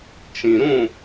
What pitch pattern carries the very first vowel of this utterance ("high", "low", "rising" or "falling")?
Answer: low